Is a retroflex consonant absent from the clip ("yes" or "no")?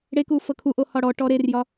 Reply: no